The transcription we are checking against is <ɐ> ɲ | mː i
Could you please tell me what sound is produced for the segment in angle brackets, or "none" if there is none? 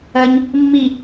ɐ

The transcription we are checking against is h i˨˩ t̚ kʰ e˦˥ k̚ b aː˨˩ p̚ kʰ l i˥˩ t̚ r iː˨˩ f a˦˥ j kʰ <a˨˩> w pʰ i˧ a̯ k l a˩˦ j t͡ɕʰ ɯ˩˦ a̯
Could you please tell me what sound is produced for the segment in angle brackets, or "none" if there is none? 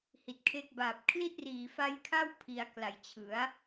a˥˩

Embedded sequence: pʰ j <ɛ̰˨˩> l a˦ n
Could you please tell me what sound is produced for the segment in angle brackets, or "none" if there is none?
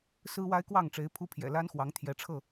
ɛ̰˨˩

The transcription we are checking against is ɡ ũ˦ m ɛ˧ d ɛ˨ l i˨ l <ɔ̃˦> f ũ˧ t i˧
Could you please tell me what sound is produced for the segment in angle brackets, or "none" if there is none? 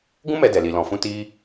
ɔ̃˨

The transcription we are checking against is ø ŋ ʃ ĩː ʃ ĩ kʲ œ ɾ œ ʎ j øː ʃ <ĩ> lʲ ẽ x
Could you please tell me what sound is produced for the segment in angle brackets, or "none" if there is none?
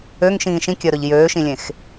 ĩ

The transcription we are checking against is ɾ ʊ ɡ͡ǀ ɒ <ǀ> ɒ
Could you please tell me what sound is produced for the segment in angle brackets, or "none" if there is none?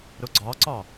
ǀ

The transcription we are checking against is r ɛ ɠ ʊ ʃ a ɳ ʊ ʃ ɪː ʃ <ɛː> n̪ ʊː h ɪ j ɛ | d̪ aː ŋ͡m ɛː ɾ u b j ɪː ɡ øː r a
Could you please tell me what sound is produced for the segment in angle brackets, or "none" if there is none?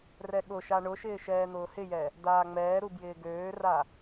ɛː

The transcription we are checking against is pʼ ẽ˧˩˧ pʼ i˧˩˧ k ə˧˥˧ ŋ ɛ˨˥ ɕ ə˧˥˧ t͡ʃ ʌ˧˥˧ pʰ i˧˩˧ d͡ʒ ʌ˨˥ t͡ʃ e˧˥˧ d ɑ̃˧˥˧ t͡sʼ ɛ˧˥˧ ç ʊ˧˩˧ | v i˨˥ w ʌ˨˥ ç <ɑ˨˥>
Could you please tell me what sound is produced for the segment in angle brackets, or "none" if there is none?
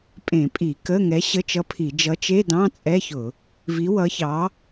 ɑ˨˥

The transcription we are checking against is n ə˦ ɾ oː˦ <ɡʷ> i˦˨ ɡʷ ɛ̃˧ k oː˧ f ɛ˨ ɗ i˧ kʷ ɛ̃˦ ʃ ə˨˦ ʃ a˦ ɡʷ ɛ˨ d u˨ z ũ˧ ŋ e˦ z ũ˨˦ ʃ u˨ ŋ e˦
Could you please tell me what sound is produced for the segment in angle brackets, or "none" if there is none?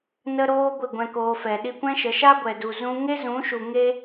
ɡʷ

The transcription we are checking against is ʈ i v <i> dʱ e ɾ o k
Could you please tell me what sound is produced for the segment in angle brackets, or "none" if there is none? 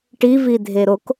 i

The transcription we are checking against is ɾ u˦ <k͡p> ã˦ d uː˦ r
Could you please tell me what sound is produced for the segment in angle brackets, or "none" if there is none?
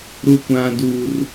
kʷ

